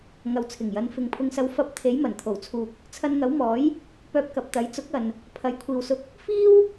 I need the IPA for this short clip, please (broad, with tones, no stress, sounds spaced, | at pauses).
ŋ ɐ˨ w t͡sʰ ɪ˨˩ ŋ j ɐ˨˧ n f ɪ˨ ŋ pʰ ʊ˧ ŋ s ɐ˧ w f ɐ˨˥ p̚ t̪ʰ e˨˥ j m ɐ˨˩ n t̪ʰ o˨˩ w t͡sʰ uː˨ k̚ | t͡sʰ ɐ˧ n ŋ ɐ˨˥ w m ɔː˨˥ j | p œː˧ p̚ k ɐ˨ p̚ t̪ ɐ˨˥ j t͡s ʊ˨˥ k̚ ɐ˨ n | pʰ ɐ˨˥ j kʷʰ iː˨ w s ʊ˧ k̚ | f iː˥ w